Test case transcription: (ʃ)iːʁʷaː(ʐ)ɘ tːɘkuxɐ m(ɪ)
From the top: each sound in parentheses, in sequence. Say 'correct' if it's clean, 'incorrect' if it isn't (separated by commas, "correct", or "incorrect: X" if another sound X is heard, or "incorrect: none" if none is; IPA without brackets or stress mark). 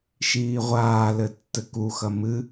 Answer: correct, incorrect: l, incorrect: ɨ